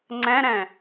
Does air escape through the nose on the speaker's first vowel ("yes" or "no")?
yes